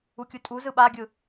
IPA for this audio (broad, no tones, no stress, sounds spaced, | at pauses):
u kʲ u tʼ u z ɯ ɓ a ɡʲ ɯ